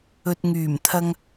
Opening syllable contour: low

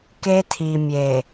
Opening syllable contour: high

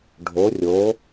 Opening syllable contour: rising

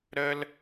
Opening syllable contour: high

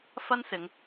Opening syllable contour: high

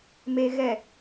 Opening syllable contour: low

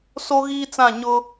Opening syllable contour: high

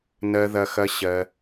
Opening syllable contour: low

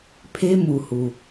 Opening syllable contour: high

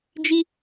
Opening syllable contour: high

